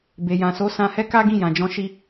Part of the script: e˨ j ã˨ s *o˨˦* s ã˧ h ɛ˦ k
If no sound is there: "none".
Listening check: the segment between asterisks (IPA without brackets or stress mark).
o˨˦